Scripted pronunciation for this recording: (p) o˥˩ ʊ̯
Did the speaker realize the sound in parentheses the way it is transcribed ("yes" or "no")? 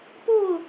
yes